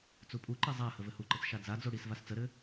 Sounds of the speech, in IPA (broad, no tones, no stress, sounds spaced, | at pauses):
t͡s u pʼ u ǃ e zˤ a h ə v ɘ h u ǃ ə t͡s ʃ a d͡z a d͡z o ɽ i s v a s t͡s ə ɾ ɘ